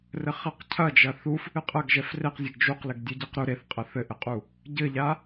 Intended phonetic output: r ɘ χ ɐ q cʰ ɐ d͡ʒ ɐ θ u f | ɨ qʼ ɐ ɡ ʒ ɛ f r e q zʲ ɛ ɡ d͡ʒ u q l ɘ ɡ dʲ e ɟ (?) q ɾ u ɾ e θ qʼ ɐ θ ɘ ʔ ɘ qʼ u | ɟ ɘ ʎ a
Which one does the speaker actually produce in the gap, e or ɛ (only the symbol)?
e